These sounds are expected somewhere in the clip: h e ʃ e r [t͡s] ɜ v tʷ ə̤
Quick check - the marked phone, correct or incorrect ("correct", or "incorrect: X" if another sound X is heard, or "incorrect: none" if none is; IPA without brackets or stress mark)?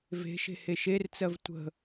correct